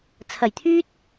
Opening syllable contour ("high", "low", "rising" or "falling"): low